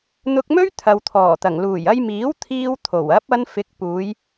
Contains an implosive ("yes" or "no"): no